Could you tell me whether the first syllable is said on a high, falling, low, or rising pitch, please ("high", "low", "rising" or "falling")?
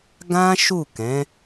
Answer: high